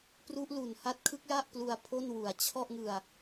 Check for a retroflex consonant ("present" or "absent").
absent